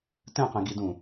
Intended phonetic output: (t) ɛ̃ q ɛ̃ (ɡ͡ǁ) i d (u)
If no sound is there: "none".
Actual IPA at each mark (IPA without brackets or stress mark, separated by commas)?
t, ɡ, ũ